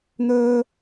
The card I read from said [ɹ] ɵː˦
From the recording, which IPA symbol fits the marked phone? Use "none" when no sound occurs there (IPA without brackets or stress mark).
n̪